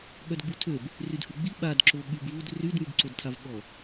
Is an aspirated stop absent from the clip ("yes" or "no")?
no